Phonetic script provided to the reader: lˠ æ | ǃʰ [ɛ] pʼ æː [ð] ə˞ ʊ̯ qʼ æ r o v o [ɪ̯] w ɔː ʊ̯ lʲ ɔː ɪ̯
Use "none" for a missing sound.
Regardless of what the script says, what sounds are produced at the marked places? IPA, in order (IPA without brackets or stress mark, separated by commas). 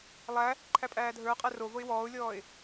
æ, dʱ, ɪ̯